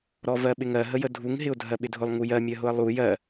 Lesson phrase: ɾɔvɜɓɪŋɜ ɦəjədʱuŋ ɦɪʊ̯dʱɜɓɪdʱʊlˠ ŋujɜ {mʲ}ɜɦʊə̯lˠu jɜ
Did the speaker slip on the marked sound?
no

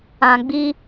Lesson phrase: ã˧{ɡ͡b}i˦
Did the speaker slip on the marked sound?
no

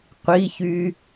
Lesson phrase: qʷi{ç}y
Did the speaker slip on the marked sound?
no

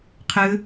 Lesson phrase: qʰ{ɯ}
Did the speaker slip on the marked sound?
no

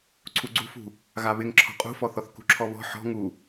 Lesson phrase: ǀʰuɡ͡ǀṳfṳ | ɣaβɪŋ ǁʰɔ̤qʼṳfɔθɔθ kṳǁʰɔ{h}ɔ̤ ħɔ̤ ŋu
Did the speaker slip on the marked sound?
yes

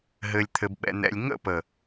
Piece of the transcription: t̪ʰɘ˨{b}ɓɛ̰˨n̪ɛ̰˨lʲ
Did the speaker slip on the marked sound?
no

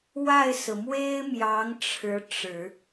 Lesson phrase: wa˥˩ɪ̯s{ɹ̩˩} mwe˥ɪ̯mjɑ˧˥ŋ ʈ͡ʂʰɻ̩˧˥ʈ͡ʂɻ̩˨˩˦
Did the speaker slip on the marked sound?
no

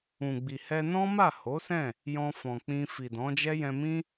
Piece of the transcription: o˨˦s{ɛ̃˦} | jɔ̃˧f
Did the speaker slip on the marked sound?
yes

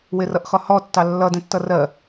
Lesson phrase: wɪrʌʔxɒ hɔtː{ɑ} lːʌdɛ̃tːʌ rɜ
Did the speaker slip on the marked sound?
no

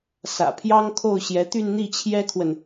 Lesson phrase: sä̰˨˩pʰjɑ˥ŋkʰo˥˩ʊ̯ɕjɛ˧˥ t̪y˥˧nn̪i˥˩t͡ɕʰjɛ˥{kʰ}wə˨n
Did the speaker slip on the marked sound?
no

